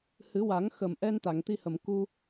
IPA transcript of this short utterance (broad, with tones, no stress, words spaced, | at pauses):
hɨ˨˩˦wa˨˩˦ŋxə˨˩mʔɛ˧n t̪a˨˩˨ŋt̪i˧hə˨˩˨m ku˧